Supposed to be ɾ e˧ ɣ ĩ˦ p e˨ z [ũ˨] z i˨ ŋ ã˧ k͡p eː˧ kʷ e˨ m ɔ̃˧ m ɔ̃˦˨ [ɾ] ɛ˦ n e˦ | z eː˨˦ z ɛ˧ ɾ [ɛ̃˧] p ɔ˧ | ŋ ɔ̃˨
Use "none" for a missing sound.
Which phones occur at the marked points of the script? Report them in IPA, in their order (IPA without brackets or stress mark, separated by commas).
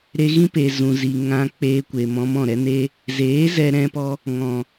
ũ˨, ɾ, ɛ̃˧